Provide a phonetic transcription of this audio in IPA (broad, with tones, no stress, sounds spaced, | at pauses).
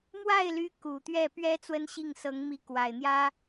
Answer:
m w a˥˩ ɪ̯ l y˧˥ k u˨˩ t̪ ɥ ɛ˥˩ p ɥ ɛ˧˥ t͡s w ə˥ n ɕ i˥˩ ŋ s ɤ˧˥ ŋ m i˧˥ k w a˨˩ ɪ̯ n̪ j ä˥